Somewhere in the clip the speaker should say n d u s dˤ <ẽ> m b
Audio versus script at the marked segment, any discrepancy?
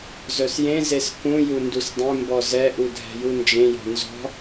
no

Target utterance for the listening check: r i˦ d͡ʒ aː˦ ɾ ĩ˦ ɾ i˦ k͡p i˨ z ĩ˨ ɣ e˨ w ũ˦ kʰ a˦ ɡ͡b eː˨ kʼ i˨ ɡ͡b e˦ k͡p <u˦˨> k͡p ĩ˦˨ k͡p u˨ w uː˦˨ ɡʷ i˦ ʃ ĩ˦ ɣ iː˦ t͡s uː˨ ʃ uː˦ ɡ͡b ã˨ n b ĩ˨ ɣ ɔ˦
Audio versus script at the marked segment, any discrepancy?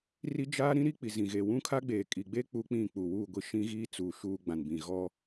yes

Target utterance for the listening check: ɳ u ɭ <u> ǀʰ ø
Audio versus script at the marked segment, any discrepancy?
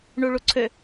no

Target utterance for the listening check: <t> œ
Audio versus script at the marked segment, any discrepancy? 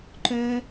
yes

